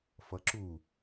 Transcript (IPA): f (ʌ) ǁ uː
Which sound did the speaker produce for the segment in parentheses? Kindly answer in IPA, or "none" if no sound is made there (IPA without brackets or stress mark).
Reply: ʌ